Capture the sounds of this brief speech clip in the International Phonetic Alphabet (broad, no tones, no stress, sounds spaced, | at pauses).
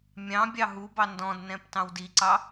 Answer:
mʲ ɑ̃ bʲ ɑ ɦ u b ɑ n d ɔ̃ d n ɛ̃ p t ɑ̃ w d i ǀ ɑ